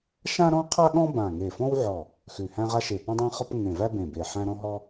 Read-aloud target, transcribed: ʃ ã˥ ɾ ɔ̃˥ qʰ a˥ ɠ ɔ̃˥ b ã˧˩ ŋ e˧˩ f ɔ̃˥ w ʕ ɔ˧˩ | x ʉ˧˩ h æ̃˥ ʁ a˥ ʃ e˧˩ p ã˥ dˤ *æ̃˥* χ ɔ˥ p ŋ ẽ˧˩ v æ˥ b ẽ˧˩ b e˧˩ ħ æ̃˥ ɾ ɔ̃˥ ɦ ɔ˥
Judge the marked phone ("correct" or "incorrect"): correct